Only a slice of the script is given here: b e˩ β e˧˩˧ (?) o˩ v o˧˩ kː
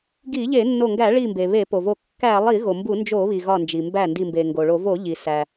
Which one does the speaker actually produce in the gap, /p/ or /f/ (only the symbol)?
p